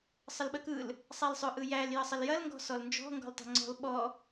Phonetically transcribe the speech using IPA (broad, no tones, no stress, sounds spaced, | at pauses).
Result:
sˤ ə l ɓ ə k ɯ l | sˤ æ l sˤ ø ʔ ɯ j æ l j ə sˤ ə l j ɐ l ŋ ɡ ɔ̤ s ɔ l n d͡ʒ ɔ̤ ŋ ɡ ɔ̤ l tˤ e̤ ŋ͡ǀ ɔ̤ l ɓ ɔ